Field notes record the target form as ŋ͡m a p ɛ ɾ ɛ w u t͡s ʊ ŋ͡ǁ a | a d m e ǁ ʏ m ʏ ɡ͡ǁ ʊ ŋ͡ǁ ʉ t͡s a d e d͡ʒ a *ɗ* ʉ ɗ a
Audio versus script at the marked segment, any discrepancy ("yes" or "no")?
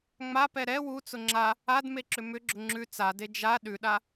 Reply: no